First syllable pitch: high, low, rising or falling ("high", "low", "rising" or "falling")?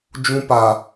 high